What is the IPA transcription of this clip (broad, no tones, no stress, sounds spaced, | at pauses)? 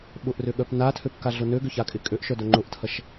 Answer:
ɓ ʊ ʔ r ʏ ɠ œ p n a tʰ ø p k a ɮ ʊ n ø ɡ ʏ ç a kʼ ɪ kʼ ø ʔ ʃ œ d œ ŋ͡ǃ ʊ ʔ tʰ ɐ ʃ